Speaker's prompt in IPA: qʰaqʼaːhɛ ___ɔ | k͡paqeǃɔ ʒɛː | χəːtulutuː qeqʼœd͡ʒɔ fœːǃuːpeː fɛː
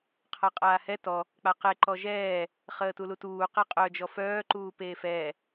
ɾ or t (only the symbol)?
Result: t